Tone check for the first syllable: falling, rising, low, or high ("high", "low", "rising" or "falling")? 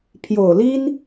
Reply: low